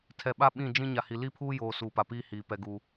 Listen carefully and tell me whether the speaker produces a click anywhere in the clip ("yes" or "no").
no